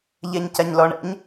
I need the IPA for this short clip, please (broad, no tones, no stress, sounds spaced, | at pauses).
ʎ ɛ ɲ c a ɲ l ɔ ɳ ɛ̰ ɲ